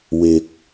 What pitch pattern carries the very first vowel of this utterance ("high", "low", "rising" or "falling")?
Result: low